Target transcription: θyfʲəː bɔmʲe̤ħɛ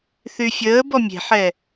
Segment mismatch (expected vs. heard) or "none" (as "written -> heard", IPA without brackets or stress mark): none